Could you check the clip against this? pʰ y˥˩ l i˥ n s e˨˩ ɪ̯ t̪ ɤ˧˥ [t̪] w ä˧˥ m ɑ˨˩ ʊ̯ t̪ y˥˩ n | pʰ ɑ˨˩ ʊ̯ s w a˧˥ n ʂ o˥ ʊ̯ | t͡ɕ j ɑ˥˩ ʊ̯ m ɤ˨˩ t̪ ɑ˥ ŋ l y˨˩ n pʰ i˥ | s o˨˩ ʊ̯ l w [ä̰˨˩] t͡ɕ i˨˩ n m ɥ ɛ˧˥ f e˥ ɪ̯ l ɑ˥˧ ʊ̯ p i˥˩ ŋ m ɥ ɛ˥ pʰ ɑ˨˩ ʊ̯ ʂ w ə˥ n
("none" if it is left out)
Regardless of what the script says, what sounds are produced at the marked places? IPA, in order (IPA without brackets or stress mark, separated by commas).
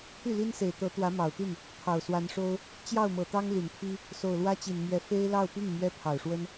t̪, ä˥